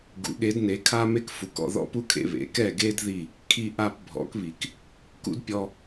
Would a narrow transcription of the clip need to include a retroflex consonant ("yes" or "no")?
no